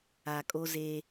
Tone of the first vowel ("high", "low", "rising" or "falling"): low